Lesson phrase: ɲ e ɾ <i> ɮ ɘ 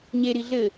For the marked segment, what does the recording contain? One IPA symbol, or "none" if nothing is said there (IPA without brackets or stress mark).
i